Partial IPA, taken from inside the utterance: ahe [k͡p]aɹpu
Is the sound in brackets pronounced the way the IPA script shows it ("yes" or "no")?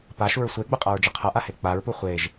yes